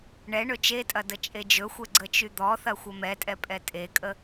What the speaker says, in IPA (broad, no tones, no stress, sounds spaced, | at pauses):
ɳ ɛ ɳ ɵ t͡ʃ e tʼ ɐ d ə t͡ʃʼ e d͡ʒ ɵ xʷ ɛ ɡ͡ǀ ə t͡ʃ y d̪ ɔ θ ɐ xʷ ɐ m ɛ tʼ ɛ pʼ ɛ tʼ e kʼ ə